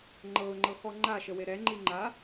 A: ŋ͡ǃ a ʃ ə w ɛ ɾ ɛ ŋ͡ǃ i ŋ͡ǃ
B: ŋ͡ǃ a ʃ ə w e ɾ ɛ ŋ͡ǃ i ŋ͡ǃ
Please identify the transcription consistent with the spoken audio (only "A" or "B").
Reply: B